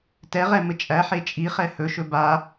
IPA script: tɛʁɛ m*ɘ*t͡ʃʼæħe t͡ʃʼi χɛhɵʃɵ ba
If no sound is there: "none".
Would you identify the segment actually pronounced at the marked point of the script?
ɘ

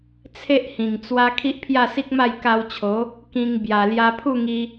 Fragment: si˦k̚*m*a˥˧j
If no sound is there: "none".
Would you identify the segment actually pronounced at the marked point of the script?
m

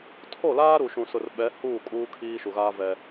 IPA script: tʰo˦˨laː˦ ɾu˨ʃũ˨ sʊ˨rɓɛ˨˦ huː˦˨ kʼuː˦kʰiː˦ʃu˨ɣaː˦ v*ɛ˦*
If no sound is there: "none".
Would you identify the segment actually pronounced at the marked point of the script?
ɛ˦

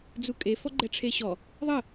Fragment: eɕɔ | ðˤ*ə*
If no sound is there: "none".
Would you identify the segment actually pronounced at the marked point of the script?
ə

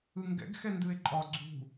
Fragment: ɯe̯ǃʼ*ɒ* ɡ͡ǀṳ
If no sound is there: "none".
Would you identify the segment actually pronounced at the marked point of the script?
ɒ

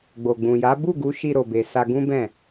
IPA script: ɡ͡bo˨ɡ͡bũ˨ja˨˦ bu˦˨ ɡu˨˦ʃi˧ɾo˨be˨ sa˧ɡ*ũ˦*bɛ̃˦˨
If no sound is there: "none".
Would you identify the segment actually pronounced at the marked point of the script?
ũ˦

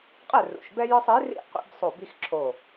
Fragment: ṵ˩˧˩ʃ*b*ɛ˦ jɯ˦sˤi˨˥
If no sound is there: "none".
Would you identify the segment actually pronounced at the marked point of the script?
b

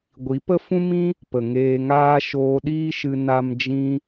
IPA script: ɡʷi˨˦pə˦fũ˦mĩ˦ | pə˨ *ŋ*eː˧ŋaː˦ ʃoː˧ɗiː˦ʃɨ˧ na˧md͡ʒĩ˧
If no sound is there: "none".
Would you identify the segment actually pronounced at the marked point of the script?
ŋ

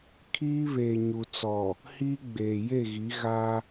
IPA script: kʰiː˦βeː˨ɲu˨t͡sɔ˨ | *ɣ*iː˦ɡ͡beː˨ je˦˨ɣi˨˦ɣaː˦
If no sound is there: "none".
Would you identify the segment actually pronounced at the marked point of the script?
h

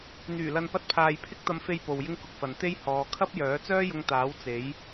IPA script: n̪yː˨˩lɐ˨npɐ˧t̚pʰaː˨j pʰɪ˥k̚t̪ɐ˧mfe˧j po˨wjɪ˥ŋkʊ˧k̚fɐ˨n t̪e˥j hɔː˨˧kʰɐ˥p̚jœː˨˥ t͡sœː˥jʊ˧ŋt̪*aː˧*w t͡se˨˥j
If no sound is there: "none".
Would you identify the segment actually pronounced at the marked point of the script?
aː˨˥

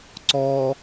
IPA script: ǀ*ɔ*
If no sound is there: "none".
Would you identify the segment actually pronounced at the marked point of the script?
ɔ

